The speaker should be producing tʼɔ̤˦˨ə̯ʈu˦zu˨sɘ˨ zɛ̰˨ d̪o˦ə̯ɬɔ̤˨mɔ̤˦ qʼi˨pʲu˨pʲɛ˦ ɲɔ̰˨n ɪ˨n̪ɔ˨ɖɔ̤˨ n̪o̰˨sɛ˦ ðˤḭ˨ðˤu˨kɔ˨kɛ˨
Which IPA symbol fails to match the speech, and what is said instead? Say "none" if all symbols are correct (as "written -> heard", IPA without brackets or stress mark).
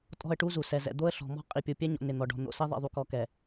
ɘ˨ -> ɛ˨